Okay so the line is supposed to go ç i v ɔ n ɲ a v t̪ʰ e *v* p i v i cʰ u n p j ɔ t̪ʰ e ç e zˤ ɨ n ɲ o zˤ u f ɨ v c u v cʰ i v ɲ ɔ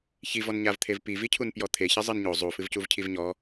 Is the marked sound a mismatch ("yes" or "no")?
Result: no